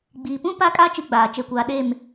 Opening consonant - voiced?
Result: yes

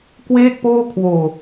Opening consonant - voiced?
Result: no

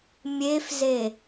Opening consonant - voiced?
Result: yes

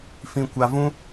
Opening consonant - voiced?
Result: no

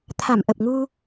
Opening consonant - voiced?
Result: no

